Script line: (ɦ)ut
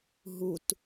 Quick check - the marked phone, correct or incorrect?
correct